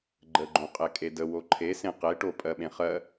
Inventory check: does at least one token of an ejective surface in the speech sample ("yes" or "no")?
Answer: yes